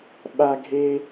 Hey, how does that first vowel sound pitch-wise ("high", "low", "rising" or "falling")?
high